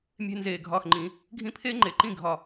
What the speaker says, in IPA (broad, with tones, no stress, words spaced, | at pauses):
mʲe̤˥nzeː˧˩ɡʱɒː˥˩xŋ͡ǃĩ˨˩˦ | ɡʱĩ˥˩pʰeː˥ŋ͡ǃe˨˩˦ǃĩ˥˩ ɡʱɒ˧˩